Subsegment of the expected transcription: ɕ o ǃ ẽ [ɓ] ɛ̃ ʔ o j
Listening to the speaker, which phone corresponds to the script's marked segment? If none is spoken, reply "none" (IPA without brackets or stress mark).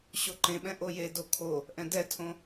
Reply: ɓ